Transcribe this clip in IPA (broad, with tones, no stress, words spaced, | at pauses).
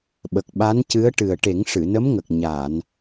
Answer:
ɓə˨˩k̚ɓa˧˥ncɨ˧˥ə̯ʈɨ˨˩ə̯ ʈe˨˩˦ŋʂɨ˨˩˨nə˧˥mŋə˨˩k̚ ɲa˨˩˨n